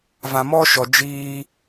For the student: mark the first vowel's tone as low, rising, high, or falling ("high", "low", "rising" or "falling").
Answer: low